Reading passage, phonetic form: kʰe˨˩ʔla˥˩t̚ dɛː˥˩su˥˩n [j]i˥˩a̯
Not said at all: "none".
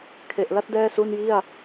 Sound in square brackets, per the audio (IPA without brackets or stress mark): j